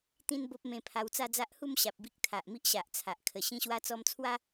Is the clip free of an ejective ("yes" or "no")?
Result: yes